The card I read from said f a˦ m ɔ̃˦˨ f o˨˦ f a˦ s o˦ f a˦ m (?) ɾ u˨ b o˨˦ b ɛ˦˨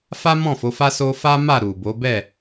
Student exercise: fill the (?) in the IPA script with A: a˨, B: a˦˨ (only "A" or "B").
B